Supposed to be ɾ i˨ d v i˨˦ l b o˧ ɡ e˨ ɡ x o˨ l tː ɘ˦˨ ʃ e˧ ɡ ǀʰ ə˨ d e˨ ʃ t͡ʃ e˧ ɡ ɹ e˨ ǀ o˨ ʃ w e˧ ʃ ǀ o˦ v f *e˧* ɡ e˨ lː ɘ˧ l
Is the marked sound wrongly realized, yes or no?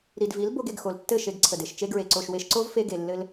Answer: no